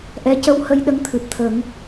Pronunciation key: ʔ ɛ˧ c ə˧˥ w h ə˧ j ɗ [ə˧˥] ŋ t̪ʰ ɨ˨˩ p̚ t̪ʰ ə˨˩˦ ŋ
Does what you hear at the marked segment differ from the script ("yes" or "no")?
no